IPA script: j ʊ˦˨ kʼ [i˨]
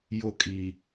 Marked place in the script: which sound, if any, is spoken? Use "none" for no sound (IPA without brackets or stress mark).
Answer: i˨